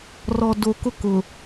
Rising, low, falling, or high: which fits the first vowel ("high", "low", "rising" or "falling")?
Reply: low